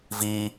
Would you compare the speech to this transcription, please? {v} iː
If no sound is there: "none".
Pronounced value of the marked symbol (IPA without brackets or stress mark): v